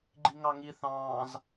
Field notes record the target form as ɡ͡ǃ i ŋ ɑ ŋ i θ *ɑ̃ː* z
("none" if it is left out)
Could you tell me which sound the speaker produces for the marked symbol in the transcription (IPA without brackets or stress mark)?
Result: ɑ̃ː